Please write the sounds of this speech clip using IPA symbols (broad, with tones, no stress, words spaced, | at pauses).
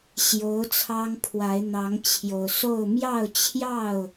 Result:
ɕjo˨˦ʊ̯ t͡sʰɑ˦ŋ pʰwa˨˦ɪ̯n̪ɑ˨˦ŋt͡ɕʰjo˨˩ʊ̯so˥˨ʊ̯ mjɑ˥˨ʊ̯t͡ɕʰjɑ˥˨ʊ̯